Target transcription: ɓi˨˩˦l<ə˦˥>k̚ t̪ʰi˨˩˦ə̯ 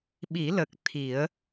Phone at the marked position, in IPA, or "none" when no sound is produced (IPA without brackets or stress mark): ə˨˩